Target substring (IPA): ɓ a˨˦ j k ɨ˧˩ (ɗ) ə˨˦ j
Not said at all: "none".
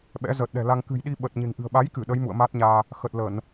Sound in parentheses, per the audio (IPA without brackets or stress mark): ɗ